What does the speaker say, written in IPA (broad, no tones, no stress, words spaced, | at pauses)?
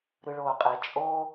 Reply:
ɾɯɭoːqʼe t͡ʃʼo